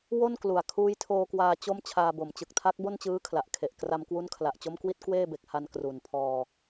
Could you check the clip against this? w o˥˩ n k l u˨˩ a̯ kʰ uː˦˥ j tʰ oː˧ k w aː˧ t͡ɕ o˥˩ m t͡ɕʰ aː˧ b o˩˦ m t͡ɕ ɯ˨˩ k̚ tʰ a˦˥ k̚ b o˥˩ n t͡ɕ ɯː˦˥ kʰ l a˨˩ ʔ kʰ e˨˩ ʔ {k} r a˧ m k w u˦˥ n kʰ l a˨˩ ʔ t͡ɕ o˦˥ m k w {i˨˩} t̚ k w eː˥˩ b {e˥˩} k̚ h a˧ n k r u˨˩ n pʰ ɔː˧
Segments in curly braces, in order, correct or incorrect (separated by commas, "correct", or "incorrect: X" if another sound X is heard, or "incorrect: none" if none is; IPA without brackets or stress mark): correct, incorrect: i˦˥, incorrect: e˨˩